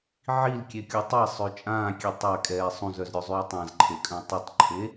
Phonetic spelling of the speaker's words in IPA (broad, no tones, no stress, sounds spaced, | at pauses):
ʕ i l kʲ e kʲ o tˤ i sˤ ø t͡ʃʼ ãː kʲ e tˤ a kʼ ɛː sˤ ũ z œ z ɾʲ ø zˤ yː tˤ ã z ǃʰ e kʼ œ̃ tˤ u tˤ ǃʰ e